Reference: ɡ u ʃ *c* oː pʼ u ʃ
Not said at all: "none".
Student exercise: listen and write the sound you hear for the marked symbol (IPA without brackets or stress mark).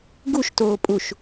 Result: t